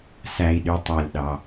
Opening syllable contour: low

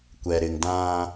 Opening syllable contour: low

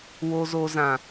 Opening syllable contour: low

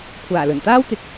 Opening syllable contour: low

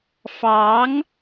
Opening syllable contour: rising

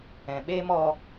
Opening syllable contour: low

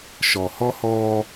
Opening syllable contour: low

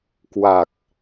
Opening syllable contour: low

